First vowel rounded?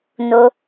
yes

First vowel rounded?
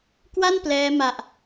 no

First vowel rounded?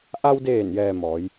no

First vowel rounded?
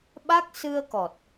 no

